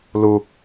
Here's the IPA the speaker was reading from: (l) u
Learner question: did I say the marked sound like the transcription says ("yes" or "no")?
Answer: yes